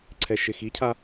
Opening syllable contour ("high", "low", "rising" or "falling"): low